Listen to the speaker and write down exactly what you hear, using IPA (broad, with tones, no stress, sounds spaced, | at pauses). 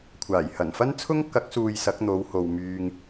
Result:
kʷʰ aː˨˩ j h ɐ˨˩ n f ɐ˥ n t͡sʰ ʊ˥ ŋ k ɐ˨˥ k̚ s uː˨ j s ɐ˨˥ k̚ n̪ o˨˧ w h o˨ w m yː˧ ŋ